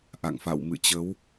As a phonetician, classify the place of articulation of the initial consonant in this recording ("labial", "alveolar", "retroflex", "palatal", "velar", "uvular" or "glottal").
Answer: glottal